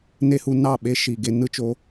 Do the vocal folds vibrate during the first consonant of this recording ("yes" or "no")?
yes